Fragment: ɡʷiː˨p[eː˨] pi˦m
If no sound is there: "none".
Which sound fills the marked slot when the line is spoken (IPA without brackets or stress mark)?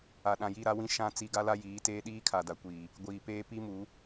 eː˦